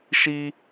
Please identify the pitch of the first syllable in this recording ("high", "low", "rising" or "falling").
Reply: high